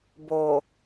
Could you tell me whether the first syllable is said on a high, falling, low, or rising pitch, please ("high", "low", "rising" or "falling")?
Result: low